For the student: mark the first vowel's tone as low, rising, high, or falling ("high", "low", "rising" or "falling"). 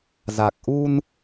low